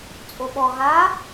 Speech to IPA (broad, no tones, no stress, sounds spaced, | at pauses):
t͡sʼ o ɓ ɔ ɣ a